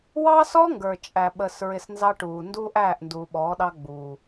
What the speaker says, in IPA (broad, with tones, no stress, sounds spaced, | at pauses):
w ɑ˦ s ɔ˦ ŋ ɡ ə˞˨ t͡ʃʼ æ˨ ɓ əː˧ s ɹ ɪ˧ s n z ɑ˦ ʈ uː˨ n d uː˦ ʔ æː˦˨ ʔ n d uː˨ ɓ ɔː˨˦ ɗ ɑ˦ ɡ͡b uː˨